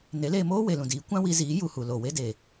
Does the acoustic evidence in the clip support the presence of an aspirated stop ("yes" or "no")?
no